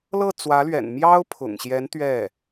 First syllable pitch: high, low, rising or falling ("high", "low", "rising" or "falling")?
falling